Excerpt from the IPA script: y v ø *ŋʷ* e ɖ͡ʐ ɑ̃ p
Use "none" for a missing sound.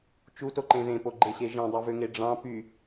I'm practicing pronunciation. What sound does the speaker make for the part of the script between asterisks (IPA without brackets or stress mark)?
ŋ